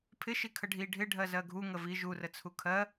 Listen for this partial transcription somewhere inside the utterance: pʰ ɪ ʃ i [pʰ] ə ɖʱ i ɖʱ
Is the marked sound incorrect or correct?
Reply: incorrect